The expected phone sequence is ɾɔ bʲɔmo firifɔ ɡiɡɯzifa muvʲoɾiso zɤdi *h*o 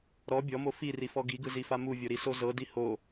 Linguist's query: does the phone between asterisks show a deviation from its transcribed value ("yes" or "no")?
no